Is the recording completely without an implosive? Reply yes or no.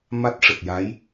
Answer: yes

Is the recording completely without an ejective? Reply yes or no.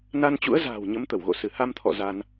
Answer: yes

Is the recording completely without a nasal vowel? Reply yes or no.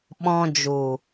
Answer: no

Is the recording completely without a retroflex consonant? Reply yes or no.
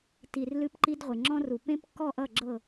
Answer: yes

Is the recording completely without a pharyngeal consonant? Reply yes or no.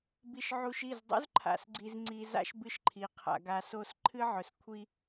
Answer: no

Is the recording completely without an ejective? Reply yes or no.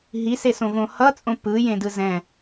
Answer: no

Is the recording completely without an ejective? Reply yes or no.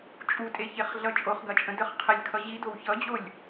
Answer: no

